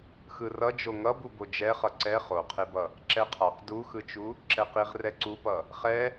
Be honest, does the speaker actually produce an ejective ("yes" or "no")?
no